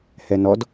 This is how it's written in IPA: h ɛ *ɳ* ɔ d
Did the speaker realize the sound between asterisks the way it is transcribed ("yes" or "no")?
no